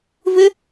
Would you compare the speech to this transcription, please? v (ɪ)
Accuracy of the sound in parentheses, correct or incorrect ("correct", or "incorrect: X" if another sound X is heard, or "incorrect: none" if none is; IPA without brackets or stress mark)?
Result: correct